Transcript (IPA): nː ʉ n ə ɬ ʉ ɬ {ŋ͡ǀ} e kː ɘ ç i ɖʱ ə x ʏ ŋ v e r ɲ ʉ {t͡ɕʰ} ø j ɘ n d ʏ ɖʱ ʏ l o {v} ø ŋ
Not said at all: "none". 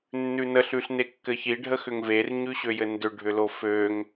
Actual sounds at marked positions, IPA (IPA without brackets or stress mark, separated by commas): n, ɕ, f